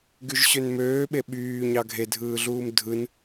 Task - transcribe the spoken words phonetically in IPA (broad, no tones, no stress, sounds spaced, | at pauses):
ɡ y ʒ ɕ ø n m øː ɓ e ɓ yː ɲ ɑ ɡʱ e dʱ ɯː ɮ uː m dʱ ɯ n